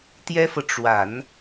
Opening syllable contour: high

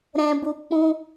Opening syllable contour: low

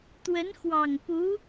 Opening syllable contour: rising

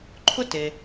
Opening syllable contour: high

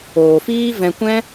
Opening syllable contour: low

